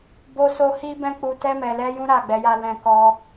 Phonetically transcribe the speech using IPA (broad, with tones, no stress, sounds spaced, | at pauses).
b o˧ s o˧ h i˦ b ɛ̃˦ k͡p u˧ t ɛ˧ m ɛ˨ l ɛ˧ j ũ˦ ɾ a˦˨ ɡ͡b ɛ˨˦ j a˦ l ɛ̃˧ k ɔ˧